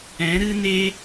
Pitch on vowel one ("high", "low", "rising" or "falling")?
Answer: rising